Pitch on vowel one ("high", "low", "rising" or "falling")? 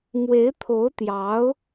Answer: rising